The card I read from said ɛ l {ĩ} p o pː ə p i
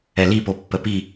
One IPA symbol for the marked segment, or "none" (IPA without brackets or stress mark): i